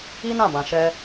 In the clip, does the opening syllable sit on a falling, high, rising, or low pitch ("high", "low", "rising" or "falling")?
high